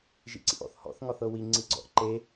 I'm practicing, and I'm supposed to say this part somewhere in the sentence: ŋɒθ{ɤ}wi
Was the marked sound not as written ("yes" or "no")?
no